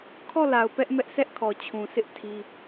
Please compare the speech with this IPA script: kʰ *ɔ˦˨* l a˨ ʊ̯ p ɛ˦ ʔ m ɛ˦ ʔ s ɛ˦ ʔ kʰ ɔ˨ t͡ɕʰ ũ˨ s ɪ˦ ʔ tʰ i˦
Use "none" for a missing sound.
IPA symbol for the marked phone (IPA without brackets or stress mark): ɔ˦˨